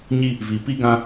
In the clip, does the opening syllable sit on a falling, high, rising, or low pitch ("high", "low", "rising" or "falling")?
high